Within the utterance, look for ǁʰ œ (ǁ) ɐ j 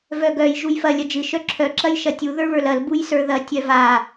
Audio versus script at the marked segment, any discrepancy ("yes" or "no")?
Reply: no